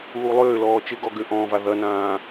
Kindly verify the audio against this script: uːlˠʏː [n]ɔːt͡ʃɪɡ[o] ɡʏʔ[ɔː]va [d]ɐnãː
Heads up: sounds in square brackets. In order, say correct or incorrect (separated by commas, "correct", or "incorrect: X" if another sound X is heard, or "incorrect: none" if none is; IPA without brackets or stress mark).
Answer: incorrect: l, incorrect: ɔ, incorrect: ɔ̃ː, incorrect: ð